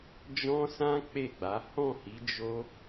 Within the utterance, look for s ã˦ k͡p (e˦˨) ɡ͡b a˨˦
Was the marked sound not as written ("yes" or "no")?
no